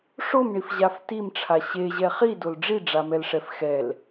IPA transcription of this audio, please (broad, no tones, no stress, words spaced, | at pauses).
ʂomɳifʑaf timʈ͡ʂʰa ɕeʑɛ χidol ɖ͡ʐiɖ͡ʐamɛlʂɛf xɛl